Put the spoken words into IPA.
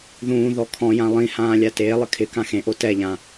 ð ũː ð ɔ kʰ ɔ̃ j ã lˠ ĩ h ãː lʲ a t eː lˠ ɪ kʰ ɪ k ã x ẽ ʔ o t ɛ ʎ ã

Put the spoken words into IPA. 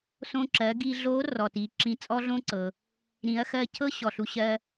s õ˧ ǁ ɜ˩˧ ɡ i˧ ɮ o˧˥ r ɔ˩ t i˩˧ ǁ ĩ˧ t͡sʼ ɔ˥ ɮ õ˥ ǀ ɤ˩ | ɾ ĩ˩˧ ɐ̯ x ɜ˧ cʰ ɤ˥ ɕ ɔ˩ ɬ u˧ ɕ ɜ˥

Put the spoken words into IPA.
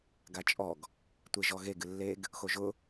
ɡ a t͡ʃʼ ɔ ɡ | tʷ e ʒ ɔ ɣ e ɡ ɨ lː e ɡ | x o ʒ ʊ

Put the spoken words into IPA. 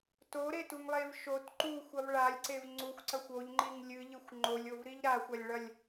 t o ɾ e t u ŋ lˠ e v ʃ o t ǃ u xʷ ɐ v ɭ a lʲ ǀ e v ŋ͡ǀ u xʷ ǀ ɐ xʷ o ʎ ŋ͡ǃ i ŋ lʲ ɨ ʎ ɨ xʷ ŋ͡ǃ o lʲ o v ɾ i ʎ ɾ a xʷ ɐ lʲ ɭ ɐ lʲ

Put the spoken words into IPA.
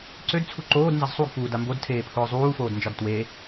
ǀ ø d t͡sʰ u ǃ oː d n z ɐ z sˤ u ɡ f uː d a m b o d tʰ eː pʰ ʊː zˤ uː f oː d n d͡ʒ ɒ d t w e

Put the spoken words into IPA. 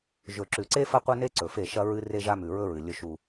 ʒ ɵ˨ ǁ ʉ˨ ǀ e˦ f ɐ˦ qʷ ɐ˦ n e˦ ǀ ɵ˨ f e˦˨ ʃ ɐ˦ ɹ ɨ˦ r e˦ ʒ a˦ m ʉ˨ ɹ ɵ˦ ɹ ɨ˨ lʲ ɵ˦ ʃ u˦

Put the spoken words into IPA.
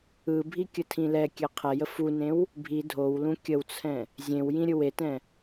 ɯ bʱ i kʲ ə tʰ ĩ l ɛ kʲ ɛ qʰ ɛ j ə f u n ẽ w | bʱ i dʱ o w l ũ kʲ ə w t͡sʰ ɛ̃ | zʲ ẽ w j ĩ ɾʲ ɯ w e t ɛ̃

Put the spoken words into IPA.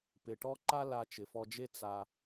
p ɪ˩ ʈ ɔ˥ ǃ a˥ l a˧ t͡ʃ ɪ˩ f ɔ˧ d͡ʒ e˥ t͡s a˧

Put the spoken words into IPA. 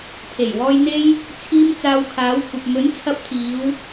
t̪ʰ e˨˩ j w ɔː˧ j n̪ e˧ j | t͡sʰ iː˧ m t͡s aː˧ w kʰ aː˨˥ w kʷʰ ɐ˨ p̚ m ɵ˨˥ n t͡sʰ ɐ˧ p̚ t̪ʰ iː˨˧ w

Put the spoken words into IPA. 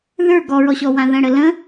ð ə˞ ɡ ɔ ɹ ɔ ɕ ɔ w ã ð ə̃ ɽ ə l ə̃

